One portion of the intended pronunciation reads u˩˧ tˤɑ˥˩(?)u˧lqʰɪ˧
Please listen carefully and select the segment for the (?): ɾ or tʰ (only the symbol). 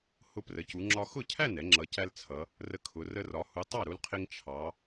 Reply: ɾ